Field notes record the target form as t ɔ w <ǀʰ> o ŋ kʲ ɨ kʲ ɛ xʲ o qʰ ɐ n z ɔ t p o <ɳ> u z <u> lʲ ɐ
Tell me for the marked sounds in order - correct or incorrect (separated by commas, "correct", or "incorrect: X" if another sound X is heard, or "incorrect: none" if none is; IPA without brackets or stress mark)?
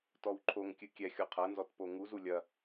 incorrect: ǃʰ, incorrect: ŋ, correct